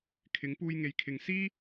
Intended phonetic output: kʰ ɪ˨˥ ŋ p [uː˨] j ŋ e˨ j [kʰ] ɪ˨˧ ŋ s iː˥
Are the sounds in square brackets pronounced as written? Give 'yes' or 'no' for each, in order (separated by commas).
no, yes